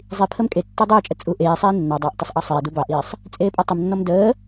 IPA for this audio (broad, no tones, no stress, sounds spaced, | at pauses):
zˤ i pʰ ə m kʼ e tː ɔ dˤ əː t͡ʃʼ ə t͡sʼ u ʔ eː sˤ iː nː ɑ dˤ ɑ ʔ tˤ ə sˤ ʔ ɑ sˤ eː d u b ɑ ʔ iː sˤ | t͡sʼ eː pʼ ɔ tˤ ə m nː ɔ m d əː